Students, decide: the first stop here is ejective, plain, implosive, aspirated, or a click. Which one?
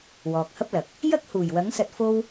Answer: plain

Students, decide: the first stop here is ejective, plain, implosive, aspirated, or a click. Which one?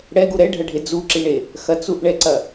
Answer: plain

